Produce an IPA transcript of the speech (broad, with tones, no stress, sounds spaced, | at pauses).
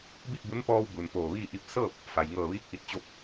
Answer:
b i˥˨ t̚ b u˧˥ n p ɔː˧ w b u˩ n p oː˧˩ ʋ iː˥˨ ʔ i˥˨ p̚ s ɤː˥˨ p̚ | f a˩ j ŋ ɤː˧˩ ʋ iː˧˥ k̚ ʔ i˧˩ t̚ t͡ɕ o˧˥ p̚